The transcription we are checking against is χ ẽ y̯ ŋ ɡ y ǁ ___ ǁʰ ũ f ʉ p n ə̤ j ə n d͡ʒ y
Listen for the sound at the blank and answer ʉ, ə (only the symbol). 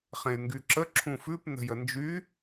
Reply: ə